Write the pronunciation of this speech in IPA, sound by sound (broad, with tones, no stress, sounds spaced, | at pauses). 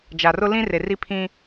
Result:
d͡ʒ a˨ r ʊ˦ l ĩ˦ r e˨ r i˦ pʰ ĩ˦